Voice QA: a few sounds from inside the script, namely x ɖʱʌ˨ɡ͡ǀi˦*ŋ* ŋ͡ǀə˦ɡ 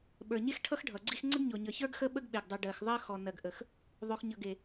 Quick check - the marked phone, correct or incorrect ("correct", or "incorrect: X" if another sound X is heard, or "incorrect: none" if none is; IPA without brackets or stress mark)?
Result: incorrect: x